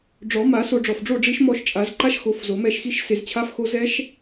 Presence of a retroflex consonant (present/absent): present